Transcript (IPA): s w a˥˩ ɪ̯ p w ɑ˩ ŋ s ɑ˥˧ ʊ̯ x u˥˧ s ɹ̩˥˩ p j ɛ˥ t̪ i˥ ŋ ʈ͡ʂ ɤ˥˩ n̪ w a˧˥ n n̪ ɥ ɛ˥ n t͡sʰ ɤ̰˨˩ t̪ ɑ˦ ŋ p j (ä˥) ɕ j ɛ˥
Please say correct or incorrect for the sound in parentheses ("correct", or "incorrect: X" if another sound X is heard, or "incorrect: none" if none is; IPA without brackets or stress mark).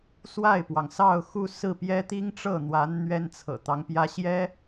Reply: correct